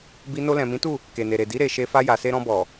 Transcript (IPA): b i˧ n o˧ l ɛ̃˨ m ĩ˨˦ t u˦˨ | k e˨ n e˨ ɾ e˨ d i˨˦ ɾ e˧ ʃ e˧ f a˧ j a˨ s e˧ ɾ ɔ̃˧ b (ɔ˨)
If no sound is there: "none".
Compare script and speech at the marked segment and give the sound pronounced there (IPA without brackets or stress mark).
ɔ˨